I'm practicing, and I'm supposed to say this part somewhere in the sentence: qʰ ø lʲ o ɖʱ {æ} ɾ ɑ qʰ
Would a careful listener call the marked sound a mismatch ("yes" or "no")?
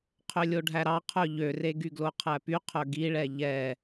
no